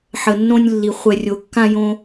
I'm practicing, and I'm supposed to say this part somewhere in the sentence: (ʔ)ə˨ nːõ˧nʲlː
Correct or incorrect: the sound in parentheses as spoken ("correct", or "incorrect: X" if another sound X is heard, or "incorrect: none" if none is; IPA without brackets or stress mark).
incorrect: ħ